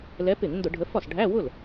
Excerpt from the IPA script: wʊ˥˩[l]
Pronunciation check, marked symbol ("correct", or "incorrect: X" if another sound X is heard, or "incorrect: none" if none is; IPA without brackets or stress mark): correct